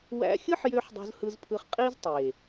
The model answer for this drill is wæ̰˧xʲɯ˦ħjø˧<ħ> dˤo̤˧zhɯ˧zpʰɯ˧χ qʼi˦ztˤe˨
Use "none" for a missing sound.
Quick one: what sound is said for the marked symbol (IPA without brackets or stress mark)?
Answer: ħ